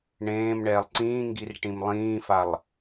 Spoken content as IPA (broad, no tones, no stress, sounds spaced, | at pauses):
ɳ ẽː m ɳ ɛː lˠ ǀ ĩː ŋ ɡ i r ʈ ĩ m lˠ ĩː f a lˠ